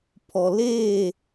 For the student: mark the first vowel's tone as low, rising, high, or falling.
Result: low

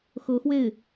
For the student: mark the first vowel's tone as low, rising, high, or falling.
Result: rising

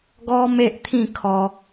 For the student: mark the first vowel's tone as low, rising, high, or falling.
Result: high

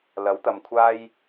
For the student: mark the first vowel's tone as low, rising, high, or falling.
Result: rising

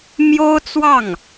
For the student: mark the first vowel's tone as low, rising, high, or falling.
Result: high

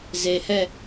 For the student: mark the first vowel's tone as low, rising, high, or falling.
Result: low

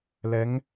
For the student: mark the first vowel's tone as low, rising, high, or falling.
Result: rising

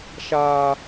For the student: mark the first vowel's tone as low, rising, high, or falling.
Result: high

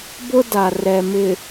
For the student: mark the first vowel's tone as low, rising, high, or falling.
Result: high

